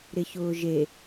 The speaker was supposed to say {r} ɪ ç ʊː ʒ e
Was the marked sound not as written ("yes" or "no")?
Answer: yes